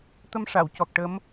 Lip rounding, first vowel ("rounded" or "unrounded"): unrounded